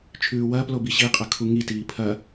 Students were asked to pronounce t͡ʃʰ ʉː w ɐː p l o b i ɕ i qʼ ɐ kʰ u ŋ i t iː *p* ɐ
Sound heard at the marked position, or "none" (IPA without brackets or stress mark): pʰ